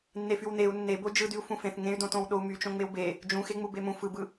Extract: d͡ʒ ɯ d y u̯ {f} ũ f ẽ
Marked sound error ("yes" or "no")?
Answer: no